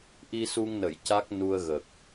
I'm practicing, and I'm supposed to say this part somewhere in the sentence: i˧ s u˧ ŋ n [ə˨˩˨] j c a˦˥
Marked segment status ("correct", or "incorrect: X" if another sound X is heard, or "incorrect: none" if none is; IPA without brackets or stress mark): correct